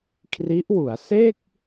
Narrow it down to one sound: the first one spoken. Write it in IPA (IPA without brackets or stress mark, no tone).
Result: kʰ